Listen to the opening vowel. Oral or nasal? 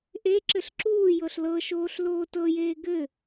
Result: oral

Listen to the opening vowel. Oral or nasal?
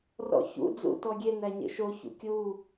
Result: oral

